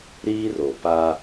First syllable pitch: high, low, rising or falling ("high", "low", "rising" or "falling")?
high